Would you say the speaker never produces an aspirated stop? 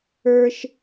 yes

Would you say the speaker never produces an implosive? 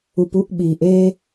no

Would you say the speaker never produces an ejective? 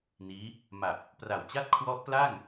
yes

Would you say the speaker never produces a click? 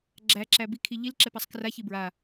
no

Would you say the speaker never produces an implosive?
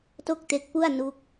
yes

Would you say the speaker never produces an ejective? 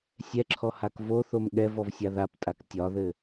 no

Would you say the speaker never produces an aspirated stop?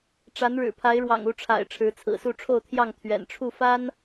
no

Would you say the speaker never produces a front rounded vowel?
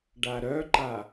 no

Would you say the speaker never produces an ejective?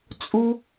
no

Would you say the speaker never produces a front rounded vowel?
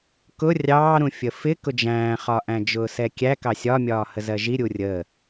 yes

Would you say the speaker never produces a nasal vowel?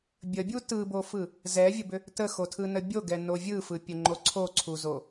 yes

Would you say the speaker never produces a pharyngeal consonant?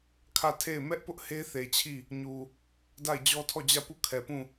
yes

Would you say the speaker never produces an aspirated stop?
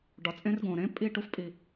yes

